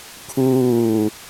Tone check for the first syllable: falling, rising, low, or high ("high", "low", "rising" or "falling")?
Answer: falling